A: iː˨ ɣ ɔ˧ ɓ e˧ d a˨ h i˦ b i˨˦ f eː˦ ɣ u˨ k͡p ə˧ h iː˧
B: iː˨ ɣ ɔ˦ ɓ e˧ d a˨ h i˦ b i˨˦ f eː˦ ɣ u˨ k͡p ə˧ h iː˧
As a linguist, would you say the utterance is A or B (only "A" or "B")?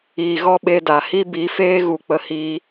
B